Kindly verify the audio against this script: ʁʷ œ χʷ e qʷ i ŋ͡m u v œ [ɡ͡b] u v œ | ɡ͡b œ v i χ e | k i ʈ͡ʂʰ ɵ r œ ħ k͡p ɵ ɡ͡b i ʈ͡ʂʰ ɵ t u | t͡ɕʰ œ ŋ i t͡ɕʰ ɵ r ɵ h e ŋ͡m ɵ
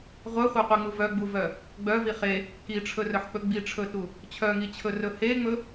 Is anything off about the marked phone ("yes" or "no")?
no